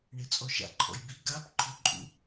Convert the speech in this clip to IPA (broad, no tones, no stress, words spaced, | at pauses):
ɳet͡sʼɔʃa̰ǃʰɔ̰j bi ɡab ǃʰʊǃʼṵ